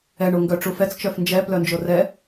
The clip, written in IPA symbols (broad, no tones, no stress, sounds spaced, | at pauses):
ɛ ɳ o ŋ ɡ œ ʈ͡ʂ u f ɛ t͡s t͡ʃ œ f n d͡ʒ ɛ p l œ n d͡ʒ o r ɛ